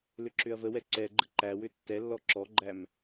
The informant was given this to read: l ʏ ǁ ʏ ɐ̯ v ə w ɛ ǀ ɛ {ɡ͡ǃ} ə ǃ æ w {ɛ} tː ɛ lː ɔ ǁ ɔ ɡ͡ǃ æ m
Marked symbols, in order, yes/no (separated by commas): yes, no